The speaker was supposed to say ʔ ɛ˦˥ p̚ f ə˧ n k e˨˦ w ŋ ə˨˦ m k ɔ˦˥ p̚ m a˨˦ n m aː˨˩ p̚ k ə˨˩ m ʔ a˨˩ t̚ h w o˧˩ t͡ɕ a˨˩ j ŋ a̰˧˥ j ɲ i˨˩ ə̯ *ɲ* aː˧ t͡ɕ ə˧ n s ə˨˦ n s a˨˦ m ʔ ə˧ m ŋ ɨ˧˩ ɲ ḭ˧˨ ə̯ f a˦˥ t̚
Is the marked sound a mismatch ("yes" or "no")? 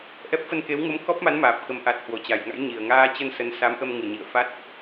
yes